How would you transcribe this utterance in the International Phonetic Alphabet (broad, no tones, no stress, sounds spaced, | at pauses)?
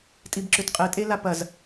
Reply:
tʼ i b ǁ ø t qʼ e tʼ e l a p ɐ z